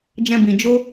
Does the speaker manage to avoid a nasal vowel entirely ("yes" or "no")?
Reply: no